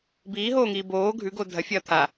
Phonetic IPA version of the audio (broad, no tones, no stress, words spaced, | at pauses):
biːɦoːŋiː boː ɡʱʉɡo dʱɐfʲɐː t̪ʰa